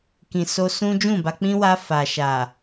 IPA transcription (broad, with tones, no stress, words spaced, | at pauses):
kĩ˨so˧ sũ˦ d͡ʒũ˦˨ba˧ k͡pĩ˦wa˧ fa˨ʃa˨